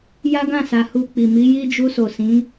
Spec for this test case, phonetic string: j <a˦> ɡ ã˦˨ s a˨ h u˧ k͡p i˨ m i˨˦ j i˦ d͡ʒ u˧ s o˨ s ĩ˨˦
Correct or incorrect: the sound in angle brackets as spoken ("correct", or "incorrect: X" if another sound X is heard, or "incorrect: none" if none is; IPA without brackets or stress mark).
correct